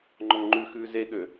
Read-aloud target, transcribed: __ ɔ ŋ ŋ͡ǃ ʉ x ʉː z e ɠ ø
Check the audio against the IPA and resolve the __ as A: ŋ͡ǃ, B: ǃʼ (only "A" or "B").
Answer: A